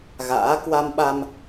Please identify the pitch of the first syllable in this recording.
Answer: rising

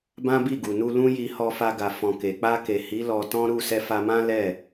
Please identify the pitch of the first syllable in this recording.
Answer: high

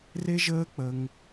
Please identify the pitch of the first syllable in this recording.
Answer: high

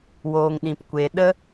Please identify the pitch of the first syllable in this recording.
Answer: low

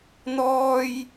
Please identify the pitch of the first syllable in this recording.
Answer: high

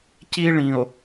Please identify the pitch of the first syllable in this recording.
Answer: high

